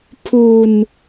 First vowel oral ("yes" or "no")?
yes